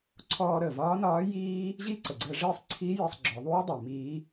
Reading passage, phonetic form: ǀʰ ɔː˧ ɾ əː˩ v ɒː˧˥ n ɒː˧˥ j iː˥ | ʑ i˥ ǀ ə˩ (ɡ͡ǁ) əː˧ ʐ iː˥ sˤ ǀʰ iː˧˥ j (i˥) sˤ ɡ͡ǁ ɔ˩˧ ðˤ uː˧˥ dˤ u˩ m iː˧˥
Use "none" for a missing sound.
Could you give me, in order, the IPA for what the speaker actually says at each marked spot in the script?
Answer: ɡ͡ǀ, i˧

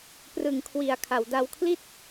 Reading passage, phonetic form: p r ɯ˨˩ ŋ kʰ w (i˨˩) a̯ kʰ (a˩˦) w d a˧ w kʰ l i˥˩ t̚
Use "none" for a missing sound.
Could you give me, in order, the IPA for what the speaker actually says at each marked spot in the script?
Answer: i˨˩, a˩˦

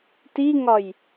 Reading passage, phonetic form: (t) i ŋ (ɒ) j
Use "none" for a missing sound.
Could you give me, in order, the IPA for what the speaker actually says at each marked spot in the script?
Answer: t, ɒ

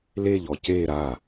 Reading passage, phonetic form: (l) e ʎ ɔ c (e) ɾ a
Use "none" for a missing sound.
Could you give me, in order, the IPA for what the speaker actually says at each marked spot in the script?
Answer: l, e

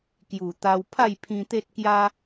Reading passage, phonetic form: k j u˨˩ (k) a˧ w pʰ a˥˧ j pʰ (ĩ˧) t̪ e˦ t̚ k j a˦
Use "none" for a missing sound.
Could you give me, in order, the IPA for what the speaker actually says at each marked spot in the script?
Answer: t̪, ĩ˧

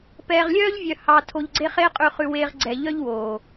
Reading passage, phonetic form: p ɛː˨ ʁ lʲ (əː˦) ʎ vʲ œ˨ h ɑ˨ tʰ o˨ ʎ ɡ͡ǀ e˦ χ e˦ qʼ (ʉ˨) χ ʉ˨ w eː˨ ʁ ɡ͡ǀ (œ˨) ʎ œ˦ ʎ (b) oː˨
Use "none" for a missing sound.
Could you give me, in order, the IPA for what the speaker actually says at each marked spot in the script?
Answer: œː˦, ʉ˨, ɛ˨, w

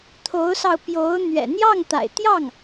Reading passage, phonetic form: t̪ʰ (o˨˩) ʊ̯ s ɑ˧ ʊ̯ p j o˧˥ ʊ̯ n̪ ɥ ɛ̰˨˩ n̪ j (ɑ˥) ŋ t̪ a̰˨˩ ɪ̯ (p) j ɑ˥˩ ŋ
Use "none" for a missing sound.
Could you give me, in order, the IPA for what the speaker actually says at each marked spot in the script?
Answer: o˧˥, ɑ˥˩, t̪

